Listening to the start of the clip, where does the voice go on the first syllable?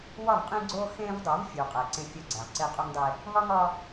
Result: falling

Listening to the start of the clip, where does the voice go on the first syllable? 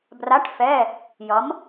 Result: rising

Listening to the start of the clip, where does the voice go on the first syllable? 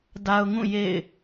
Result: high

